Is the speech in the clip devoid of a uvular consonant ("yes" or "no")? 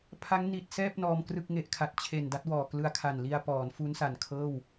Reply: yes